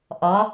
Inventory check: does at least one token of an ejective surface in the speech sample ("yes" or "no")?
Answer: no